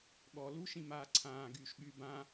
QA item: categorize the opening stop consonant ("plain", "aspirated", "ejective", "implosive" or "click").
implosive